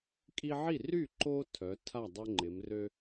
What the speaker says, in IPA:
kʼ i˦ ʕ i˥˩ r y˥˩ ǃ o˦ tʰ œ˩˧ tʰ a˥˩ dˤ o˦ ŋ͡ǃ ɪ˩˧ m r ø˦

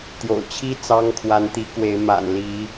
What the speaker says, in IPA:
t̪ j o̰˨˩ ʊ̯ t͡ɕʰ i˦ t͡s ɑ˦ ŋ kʰ w a˨˦ n t̪ i˨˦ k w e˨˦ ɪ̯ m a̰˨˩ n l i˨˦

